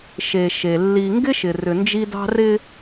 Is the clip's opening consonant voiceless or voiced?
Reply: voiceless